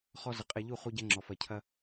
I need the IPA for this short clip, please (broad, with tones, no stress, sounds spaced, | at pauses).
χ ɔ˧ z ə˨ qʼ ɛ˨ ʎ u˦˨ χ u˧ ɟ ɛ˧ ŋ͡ǁ ɔ˨ f ɐ˨ cʰ ɐ˧